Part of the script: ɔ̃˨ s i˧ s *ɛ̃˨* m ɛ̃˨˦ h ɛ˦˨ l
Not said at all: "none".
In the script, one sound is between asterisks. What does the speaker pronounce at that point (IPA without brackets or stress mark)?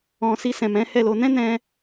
ɛ̃˨